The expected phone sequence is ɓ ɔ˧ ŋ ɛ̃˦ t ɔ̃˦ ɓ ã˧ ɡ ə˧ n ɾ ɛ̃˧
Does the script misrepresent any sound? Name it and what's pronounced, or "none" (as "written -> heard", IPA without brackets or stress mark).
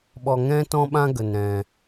ã˧ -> ã˦